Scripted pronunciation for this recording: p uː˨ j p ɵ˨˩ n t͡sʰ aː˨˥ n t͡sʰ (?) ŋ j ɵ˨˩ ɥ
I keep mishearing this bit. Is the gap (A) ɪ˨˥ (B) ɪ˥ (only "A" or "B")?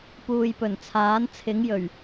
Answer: A